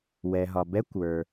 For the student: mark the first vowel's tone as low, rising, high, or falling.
low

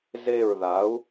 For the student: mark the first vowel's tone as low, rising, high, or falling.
falling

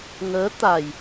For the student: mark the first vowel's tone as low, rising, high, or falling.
rising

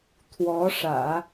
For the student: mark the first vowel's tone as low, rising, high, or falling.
rising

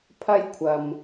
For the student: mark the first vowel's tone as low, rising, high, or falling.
high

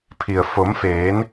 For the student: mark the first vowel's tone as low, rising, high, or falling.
low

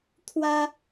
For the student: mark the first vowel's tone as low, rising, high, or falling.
high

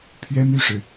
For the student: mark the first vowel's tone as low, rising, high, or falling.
high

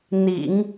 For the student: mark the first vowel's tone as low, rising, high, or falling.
low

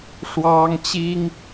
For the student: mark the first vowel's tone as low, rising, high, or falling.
high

